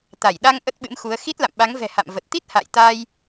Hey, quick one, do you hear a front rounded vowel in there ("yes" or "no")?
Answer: no